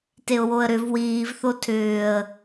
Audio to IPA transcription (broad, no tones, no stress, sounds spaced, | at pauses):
t e ʊ̯ w o ə̯ ɾ ʏ v w iː v θ o tʰ ʏː ə̯